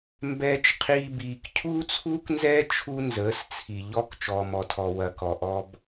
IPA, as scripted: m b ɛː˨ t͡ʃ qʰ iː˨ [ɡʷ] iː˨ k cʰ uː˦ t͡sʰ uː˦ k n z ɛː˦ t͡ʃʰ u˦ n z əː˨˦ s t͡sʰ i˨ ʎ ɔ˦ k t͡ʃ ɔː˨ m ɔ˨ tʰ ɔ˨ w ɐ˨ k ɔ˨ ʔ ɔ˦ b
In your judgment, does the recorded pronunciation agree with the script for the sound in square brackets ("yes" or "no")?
no